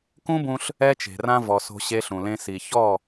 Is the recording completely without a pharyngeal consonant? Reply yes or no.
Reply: yes